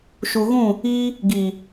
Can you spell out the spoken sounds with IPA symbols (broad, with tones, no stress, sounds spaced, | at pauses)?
ʃ u˨ ɣ ũ˦˨ | iː˦ | ɡ iː˨